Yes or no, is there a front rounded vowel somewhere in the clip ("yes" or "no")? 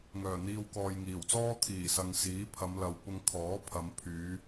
yes